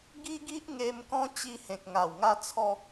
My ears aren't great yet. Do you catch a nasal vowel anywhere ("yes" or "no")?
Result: yes